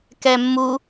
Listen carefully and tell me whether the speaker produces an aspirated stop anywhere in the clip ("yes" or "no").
no